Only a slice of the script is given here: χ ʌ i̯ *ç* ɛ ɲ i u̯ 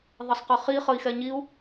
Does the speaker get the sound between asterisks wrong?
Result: yes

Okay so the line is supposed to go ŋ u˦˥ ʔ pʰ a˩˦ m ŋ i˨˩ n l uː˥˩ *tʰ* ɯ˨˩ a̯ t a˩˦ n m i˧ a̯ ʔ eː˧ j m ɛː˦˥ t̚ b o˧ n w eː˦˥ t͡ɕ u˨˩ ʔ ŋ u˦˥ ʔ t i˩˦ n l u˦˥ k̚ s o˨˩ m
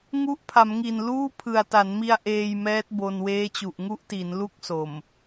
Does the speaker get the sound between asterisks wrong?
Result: yes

